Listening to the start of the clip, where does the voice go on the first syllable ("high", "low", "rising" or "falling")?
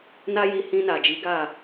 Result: high